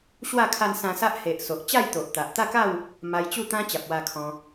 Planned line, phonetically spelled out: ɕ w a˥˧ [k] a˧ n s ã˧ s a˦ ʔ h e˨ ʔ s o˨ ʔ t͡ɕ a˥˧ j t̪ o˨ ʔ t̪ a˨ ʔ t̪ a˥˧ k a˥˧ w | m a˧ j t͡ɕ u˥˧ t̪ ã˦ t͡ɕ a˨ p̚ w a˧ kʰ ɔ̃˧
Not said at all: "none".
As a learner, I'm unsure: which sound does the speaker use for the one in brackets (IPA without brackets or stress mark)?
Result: kʰ